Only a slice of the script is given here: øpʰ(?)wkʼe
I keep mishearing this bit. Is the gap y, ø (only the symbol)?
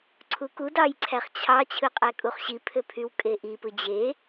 y